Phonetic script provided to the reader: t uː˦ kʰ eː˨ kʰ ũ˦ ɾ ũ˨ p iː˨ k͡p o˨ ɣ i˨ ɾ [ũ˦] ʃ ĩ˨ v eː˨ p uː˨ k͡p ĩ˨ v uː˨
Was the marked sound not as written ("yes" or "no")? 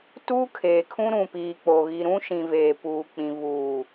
no